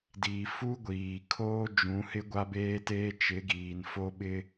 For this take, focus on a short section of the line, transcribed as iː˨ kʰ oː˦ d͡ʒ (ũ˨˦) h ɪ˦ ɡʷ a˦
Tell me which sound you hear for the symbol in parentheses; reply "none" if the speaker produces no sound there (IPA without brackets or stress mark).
ũ˨˦